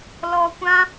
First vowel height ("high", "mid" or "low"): mid